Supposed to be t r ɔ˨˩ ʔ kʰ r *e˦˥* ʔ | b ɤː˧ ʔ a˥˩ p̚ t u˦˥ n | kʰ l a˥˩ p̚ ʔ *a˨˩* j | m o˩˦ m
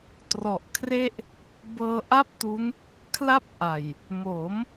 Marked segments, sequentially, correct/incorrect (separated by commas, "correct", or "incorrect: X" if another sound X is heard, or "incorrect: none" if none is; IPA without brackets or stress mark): incorrect: e˥˩, correct